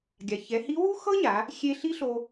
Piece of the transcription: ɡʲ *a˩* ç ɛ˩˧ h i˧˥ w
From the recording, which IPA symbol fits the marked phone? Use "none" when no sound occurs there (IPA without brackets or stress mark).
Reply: a˩